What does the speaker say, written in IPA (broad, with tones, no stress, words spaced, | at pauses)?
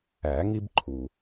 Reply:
æ˨˩˦ ŋi˦b ǃʰu˨˩